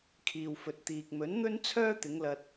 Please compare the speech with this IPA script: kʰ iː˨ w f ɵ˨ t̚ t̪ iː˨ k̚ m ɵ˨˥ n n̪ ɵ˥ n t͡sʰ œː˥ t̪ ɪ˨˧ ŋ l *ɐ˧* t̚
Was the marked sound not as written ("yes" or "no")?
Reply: no